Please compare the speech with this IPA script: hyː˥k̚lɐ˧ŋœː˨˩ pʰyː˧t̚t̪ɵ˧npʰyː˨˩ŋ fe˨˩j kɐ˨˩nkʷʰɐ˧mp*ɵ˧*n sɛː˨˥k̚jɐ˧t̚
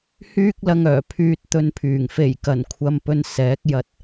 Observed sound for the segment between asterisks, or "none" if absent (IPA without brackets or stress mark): ɵ˧